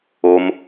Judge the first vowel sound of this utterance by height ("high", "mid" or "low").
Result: mid